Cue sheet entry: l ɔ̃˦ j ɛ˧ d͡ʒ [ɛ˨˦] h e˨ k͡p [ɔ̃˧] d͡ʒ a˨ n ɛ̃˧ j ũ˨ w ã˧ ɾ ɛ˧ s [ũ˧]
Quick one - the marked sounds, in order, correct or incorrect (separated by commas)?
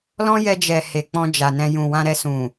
incorrect, correct, incorrect